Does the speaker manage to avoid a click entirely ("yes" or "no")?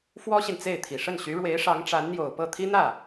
yes